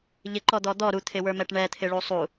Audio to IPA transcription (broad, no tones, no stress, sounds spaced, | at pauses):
ʎ ɪ ǃ ɔ d̪ ɔ d̪ ɔ ɾ u t̪ʰ ɪ w ə˞ m ɛ ʈ ɳ ɛ t̪ʰ ɪ ɭ u sˤ u